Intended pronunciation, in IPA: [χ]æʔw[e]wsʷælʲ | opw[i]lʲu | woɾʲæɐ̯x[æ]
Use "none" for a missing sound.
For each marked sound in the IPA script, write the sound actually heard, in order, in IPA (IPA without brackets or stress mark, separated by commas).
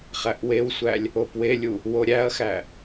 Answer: χ, e, e, æ